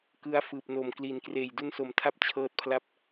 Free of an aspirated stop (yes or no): no